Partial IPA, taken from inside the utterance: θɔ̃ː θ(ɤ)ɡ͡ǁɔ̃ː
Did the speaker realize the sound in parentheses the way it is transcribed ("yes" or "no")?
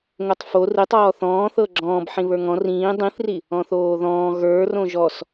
yes